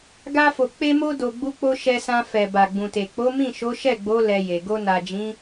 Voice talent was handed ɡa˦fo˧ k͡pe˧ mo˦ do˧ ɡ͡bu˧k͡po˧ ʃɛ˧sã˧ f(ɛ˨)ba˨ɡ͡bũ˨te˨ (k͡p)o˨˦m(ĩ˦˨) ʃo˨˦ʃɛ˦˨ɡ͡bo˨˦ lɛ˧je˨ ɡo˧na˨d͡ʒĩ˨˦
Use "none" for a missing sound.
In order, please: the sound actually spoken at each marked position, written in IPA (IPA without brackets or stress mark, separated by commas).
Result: ɛ˨, k͡p, ĩ˦˨